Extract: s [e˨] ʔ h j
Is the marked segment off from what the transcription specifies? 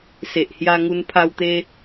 no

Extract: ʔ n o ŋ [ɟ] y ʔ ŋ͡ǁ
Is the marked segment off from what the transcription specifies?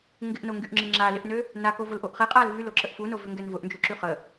yes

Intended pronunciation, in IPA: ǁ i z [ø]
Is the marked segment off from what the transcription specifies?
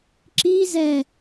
yes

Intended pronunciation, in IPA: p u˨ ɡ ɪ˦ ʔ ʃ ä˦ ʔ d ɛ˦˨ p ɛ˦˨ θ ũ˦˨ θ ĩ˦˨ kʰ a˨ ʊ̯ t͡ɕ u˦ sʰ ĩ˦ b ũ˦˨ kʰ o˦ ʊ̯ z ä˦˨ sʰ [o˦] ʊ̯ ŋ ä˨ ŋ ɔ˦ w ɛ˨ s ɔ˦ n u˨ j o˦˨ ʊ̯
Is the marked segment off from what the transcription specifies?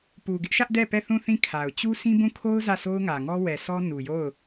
no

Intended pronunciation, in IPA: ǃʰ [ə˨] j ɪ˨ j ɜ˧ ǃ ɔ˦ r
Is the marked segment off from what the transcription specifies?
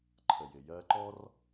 no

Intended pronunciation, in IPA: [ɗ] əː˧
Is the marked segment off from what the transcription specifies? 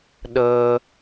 no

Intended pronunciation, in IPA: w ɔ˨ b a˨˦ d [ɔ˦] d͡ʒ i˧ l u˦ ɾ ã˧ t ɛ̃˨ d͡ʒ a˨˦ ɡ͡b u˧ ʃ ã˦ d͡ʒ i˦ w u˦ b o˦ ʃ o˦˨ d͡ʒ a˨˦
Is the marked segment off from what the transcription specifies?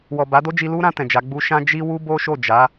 yes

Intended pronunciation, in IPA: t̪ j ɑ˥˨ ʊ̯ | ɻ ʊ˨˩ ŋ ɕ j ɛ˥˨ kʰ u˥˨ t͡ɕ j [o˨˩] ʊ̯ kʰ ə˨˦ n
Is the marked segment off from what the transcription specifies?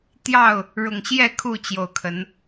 no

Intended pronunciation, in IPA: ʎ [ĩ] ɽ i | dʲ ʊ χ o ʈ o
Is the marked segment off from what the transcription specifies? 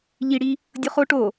yes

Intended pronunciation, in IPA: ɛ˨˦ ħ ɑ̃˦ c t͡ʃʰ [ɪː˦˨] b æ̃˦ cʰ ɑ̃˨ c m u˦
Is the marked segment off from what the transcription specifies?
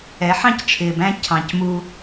yes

